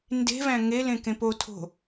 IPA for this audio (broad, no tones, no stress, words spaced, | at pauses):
nde̤væ̃ ŋelẽ kẽpotʰo̤